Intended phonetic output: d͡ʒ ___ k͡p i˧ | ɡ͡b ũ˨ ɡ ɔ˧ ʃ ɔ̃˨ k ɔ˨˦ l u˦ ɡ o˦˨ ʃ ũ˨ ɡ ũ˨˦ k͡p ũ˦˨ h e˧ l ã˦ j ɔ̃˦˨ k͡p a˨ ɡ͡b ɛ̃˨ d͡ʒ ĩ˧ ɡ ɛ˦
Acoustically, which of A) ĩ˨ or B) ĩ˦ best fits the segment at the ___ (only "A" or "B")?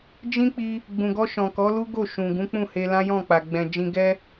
B